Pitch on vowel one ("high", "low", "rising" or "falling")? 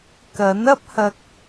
rising